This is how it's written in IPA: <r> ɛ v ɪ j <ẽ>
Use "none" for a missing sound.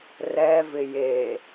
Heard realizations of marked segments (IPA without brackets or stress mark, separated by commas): r, e